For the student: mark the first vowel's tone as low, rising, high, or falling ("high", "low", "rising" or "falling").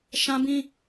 high